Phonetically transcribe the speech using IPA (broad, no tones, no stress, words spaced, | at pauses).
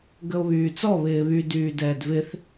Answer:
ɡəo̯βyːt͡sɔ βɪːβy dyːdɛːdvɪθ